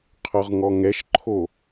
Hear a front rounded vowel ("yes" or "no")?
no